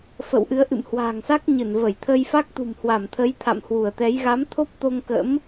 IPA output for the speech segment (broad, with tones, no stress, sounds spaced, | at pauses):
f ə̰˧˨ w ʔ ɨ˨˦ ə̯ ʔ ɨ̰˧˨ m h w a̤ː˨˩ ŋ s a˦˥ k̚ ɲ ɨ˧˩ n v ə˧˩ j t̪ʰ ə˧ j f a˦˥ k̚ t̪ ṳ˨˩ m h w a˧˩ m t̪ʰ ə˨˦ j t̪ʰ a̰˧˨ m h w u˧˩ ə̯ t̪ ɛ˨˦ j ɣ a˨˦ m t̪ʰ o˦˥ p̚ t̪ o˧ ŋ k ə̰˧˥ m